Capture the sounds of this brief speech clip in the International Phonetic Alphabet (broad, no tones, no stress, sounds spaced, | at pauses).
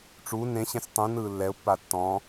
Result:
ʈ͡ʂ u n ẽ ɕ ẽ s tˤ ũ n ɯː lː ɛ ʊ̯ pː a tː ɔ̃ː